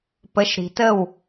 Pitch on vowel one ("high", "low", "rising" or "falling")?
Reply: rising